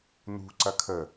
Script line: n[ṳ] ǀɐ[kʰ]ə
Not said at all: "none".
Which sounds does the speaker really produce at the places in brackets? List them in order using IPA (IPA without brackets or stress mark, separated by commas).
ṳ, kʰ